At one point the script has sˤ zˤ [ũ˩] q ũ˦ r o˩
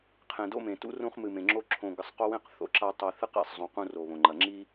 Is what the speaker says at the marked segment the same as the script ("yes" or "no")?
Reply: no